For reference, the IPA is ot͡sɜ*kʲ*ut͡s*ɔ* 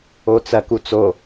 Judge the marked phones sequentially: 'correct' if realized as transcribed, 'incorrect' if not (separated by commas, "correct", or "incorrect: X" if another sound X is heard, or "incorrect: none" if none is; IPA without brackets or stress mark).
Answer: incorrect: k, incorrect: o